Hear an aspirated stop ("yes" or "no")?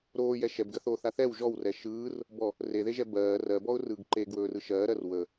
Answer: no